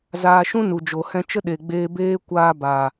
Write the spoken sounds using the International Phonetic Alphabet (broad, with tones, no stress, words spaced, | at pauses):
zaː˧ʃũ˦nu˨d͡ʒo˨ hɛ̃˧t͡ʃə˦ɗe˨ɡ͡beː˧ beː˦ kʷaː˦baː˨